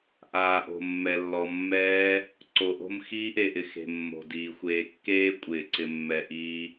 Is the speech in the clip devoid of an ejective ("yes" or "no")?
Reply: no